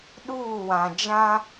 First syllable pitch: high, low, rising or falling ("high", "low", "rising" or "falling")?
falling